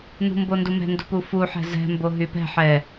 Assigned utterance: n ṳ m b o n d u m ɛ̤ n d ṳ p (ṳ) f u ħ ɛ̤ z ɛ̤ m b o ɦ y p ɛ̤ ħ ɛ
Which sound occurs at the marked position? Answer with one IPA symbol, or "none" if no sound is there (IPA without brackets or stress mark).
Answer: u